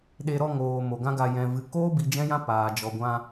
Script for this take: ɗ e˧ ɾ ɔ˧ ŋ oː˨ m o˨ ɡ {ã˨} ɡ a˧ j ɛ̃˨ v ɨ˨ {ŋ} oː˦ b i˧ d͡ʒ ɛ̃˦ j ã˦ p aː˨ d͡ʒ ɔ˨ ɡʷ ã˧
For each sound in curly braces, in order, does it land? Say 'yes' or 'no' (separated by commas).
no, no